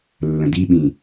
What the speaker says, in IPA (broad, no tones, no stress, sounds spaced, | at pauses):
lː ə̃ d i ɓ ĩ